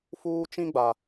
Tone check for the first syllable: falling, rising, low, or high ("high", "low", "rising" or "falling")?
high